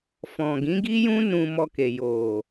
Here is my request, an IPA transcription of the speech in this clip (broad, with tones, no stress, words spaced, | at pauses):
fɔ̃˨ɡĩ˨˦ɡi˦jũ˦ nũ˧mɔ˧ke˨ jo˨